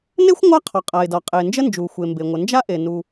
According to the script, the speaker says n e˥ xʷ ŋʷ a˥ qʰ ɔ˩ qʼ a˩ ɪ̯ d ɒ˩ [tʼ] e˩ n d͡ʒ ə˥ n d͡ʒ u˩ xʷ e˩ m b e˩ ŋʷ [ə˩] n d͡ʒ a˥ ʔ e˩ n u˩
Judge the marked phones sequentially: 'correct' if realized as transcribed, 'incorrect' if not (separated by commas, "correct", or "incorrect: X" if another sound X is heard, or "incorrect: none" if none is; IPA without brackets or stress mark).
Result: incorrect: qʼ, correct